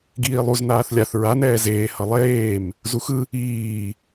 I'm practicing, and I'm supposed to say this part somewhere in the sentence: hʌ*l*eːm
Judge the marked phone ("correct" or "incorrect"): incorrect